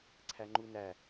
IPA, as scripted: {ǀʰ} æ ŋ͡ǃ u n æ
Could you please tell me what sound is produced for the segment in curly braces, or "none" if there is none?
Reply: ǀʰ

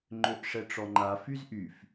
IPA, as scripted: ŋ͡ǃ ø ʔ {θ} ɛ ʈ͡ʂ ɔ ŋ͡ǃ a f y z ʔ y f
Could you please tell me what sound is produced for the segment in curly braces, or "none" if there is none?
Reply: ʂ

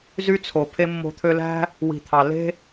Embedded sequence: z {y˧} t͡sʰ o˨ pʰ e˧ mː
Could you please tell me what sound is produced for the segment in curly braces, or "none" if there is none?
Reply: y˧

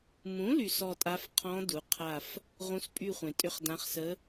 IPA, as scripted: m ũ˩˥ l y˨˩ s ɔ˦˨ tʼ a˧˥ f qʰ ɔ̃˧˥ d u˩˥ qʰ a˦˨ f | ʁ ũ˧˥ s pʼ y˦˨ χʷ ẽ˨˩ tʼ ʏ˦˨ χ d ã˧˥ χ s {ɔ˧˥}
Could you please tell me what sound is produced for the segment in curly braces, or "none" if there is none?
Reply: ə˧˥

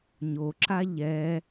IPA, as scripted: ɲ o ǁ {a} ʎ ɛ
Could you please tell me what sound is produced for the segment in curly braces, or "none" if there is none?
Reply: a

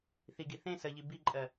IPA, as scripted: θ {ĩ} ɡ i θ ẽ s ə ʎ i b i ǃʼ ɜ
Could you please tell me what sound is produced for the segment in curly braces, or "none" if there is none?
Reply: i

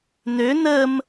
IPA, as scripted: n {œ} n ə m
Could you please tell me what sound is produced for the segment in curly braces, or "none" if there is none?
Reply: ø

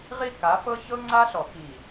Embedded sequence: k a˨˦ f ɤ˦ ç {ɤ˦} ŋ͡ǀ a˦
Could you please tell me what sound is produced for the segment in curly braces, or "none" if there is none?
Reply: ɤ˦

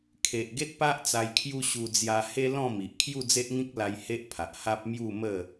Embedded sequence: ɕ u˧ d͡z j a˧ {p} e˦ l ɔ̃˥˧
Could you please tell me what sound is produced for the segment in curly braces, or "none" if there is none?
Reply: h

